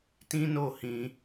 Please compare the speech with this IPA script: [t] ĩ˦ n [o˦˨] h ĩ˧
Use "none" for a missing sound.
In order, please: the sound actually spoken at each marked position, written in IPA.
t, o˦˨

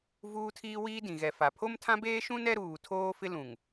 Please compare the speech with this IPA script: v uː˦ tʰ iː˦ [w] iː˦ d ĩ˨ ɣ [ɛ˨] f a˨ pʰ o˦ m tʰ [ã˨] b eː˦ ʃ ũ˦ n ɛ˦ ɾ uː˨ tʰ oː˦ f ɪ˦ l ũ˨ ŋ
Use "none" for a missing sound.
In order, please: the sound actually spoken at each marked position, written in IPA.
w, ɛ˨, ã˦

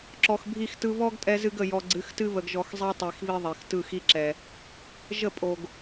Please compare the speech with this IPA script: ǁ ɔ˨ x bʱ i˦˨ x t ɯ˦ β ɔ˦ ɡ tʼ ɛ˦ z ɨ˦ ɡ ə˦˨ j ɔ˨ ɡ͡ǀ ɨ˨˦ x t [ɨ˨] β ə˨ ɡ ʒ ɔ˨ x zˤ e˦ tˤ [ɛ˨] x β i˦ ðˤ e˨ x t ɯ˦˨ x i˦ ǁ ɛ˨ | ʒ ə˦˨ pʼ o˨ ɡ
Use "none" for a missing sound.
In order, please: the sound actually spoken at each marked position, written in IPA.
ɨ˦, e˨

